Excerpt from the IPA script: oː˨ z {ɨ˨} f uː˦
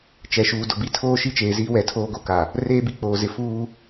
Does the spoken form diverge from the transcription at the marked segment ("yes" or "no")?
yes